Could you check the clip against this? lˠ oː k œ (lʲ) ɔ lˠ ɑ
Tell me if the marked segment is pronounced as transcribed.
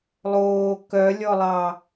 yes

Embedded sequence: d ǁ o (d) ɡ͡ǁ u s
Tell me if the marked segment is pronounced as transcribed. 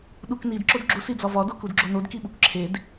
yes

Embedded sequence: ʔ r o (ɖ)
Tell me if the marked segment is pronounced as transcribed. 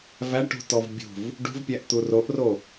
no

